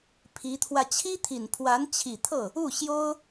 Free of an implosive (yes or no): yes